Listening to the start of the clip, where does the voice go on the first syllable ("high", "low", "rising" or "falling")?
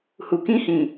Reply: low